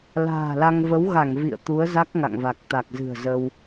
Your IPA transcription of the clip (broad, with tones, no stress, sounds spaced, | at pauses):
l a̤ː˨˩ l a˧ ŋ v ə˨˦ w ɣ a˧˩ ŋ v ḭ˧˨ ə̯ t̪ u˨˦ ə̯ z a˦˥ k̚ ŋ a̰˧˨ ŋ v a˨˩ k̚ t̪ a˨˩ k̚ z ɨ̤˨˩ ə̯ z ə˧ w